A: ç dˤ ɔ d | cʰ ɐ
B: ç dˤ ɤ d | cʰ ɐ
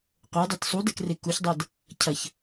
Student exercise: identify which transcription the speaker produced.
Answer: B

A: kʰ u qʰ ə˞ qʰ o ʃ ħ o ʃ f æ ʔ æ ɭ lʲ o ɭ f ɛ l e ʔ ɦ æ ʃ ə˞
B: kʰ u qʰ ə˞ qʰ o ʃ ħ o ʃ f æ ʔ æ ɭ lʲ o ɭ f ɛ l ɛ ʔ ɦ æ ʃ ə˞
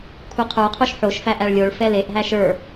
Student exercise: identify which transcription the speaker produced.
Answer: A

